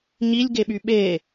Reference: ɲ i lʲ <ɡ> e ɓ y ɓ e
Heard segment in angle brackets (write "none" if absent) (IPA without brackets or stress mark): ɡ